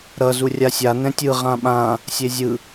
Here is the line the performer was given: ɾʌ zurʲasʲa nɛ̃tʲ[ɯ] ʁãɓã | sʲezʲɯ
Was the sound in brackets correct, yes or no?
yes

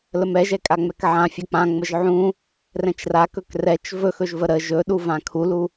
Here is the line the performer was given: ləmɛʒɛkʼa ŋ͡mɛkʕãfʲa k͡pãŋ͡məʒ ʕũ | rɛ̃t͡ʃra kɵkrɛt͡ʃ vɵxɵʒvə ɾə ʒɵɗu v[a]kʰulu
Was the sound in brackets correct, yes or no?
no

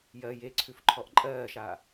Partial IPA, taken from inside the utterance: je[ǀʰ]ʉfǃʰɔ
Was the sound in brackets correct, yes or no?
yes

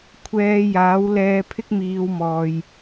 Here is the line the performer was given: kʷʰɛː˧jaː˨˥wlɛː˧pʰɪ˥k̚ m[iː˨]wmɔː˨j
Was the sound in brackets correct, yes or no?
no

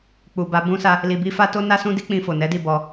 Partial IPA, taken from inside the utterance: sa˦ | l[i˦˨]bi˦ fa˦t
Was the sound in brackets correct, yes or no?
no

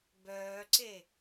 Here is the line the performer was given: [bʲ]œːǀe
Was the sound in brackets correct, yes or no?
no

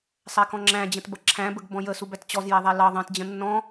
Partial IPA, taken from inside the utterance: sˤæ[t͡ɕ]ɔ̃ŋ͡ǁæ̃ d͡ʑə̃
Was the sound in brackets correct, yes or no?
no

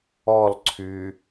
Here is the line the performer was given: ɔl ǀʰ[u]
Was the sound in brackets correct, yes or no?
no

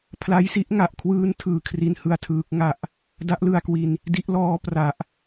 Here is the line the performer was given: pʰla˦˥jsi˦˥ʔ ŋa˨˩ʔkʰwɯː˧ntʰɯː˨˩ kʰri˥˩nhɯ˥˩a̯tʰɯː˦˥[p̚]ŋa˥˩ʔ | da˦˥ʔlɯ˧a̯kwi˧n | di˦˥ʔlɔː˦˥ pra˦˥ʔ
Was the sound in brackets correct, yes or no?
no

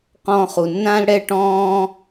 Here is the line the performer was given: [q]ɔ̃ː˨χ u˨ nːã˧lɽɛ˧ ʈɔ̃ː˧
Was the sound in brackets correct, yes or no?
yes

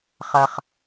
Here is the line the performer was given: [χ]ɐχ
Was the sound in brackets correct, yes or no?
yes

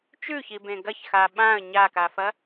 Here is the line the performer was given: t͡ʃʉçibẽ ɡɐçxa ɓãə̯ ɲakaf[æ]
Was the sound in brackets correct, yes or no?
no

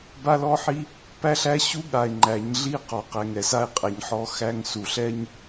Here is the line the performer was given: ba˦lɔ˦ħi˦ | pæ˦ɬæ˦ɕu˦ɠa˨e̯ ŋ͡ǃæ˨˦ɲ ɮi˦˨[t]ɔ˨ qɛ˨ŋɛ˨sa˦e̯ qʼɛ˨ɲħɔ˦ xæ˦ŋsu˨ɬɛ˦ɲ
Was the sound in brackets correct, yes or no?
no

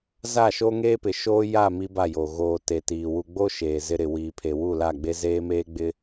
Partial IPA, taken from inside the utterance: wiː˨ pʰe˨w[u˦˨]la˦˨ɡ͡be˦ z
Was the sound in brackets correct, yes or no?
yes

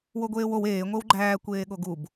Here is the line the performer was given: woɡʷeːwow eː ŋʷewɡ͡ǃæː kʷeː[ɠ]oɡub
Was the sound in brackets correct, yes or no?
yes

